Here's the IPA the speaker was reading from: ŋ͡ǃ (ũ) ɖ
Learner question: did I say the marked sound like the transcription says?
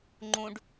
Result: yes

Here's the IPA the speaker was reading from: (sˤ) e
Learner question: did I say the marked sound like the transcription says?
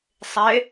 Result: yes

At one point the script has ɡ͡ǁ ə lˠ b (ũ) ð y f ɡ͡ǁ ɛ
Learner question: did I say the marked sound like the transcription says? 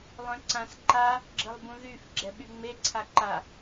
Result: yes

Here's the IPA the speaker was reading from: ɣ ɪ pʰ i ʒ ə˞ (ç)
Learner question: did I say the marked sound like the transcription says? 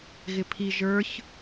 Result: yes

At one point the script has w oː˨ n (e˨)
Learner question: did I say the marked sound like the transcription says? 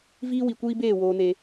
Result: yes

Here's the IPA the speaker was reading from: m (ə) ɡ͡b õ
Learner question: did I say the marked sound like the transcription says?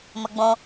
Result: yes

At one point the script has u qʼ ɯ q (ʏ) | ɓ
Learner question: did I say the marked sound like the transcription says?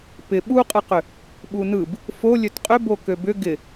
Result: yes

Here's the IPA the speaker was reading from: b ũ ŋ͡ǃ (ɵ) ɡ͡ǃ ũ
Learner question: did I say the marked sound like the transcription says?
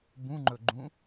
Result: yes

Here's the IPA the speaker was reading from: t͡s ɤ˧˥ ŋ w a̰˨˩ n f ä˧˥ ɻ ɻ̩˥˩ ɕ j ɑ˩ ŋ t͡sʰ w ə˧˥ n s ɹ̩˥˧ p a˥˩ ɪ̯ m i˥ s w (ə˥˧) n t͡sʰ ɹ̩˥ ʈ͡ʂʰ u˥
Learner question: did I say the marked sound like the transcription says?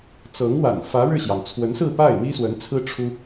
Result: no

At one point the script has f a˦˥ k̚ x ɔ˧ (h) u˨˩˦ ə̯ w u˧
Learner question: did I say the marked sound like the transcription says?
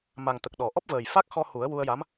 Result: yes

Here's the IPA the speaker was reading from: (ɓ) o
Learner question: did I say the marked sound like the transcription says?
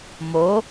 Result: no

